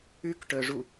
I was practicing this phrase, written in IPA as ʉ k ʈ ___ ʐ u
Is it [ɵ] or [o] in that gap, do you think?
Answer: ɵ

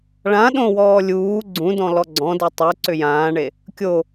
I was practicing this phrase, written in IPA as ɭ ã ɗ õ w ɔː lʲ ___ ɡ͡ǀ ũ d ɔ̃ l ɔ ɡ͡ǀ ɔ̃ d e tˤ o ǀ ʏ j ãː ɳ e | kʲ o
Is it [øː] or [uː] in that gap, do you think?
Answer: uː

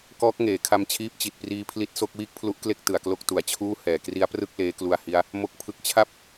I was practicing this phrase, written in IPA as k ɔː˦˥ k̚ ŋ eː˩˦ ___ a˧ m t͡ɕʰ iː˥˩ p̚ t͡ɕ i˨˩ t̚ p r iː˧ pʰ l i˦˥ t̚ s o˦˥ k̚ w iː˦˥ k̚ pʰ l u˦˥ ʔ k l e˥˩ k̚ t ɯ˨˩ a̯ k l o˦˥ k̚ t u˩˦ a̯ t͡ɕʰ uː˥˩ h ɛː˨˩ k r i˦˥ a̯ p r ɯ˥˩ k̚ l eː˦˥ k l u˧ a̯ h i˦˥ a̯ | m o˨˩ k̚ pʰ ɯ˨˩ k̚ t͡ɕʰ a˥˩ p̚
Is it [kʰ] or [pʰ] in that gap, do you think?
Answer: kʰ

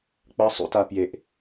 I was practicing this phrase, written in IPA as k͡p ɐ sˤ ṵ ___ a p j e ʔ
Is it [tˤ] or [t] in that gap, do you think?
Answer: t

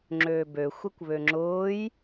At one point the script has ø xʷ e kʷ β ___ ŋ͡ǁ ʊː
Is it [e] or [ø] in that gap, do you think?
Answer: ø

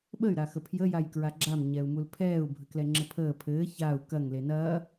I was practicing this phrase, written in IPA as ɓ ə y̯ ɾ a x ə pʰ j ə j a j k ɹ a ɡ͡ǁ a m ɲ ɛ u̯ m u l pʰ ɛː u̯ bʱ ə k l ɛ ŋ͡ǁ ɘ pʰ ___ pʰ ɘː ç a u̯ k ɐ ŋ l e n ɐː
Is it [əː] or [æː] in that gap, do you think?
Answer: əː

